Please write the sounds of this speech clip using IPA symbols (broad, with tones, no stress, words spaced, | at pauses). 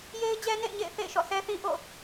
je˦ɪ̯d͡ʑɛ˦nḛ˦˨ɪ̯ɲḛ˦˨ɪ̯ θḛ˦˨ɪ̯ʃɔ̰˦˨sɛ˦θĩ˦ ʔo̰˦˨